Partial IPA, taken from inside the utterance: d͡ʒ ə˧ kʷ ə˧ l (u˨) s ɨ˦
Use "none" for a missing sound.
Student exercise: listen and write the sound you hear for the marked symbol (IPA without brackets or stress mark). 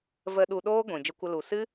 u˨